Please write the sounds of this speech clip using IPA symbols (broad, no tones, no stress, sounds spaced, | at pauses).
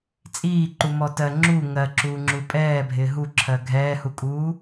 t͡sʼ iː ǃ u m ɔ t ɜ ŋ͡ǁ u ŋ ɜ ǁ uː ŋ͡ǁ u pʼ ɛː bʱ ɪː ɦ u ǁʰ ɜ ɡʱ ɛː h u kʼ uː